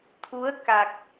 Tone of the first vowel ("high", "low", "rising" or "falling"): rising